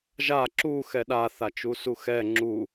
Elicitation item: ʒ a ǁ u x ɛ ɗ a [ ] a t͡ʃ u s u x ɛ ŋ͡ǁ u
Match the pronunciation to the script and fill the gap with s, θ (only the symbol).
θ